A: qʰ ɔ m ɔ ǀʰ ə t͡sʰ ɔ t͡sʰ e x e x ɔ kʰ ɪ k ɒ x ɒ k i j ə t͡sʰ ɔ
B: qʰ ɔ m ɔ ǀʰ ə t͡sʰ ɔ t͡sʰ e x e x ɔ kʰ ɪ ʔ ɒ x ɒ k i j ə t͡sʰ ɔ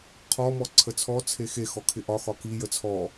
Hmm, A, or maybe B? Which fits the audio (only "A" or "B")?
B